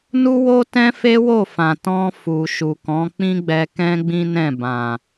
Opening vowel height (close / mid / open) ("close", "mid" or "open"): close